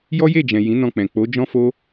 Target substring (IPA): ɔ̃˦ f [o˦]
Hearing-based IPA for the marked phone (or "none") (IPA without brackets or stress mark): o˦